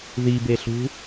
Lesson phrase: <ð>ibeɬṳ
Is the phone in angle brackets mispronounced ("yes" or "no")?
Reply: no